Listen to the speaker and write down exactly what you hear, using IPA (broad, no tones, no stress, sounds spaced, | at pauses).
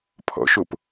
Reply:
pʰ ɔ̰ ʃ o p